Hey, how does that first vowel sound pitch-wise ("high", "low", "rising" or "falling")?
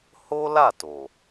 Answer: high